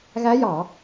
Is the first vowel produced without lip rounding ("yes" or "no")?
yes